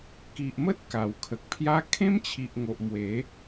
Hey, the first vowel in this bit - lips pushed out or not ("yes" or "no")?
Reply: no